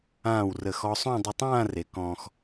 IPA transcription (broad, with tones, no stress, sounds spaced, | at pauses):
ãː˧˩ w r ə˧˩ x ɔ˧ sˤ õ˥˧ dˤ ə˧ tˤ ãː˥˧ r e˩˧ k ɔ̃ː˧ x